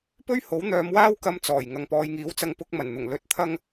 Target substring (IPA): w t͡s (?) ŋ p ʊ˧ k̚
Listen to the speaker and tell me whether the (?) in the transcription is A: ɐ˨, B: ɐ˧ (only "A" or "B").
B